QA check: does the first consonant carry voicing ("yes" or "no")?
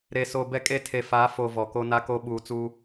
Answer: yes